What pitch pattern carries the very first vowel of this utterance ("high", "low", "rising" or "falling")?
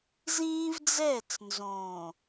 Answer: high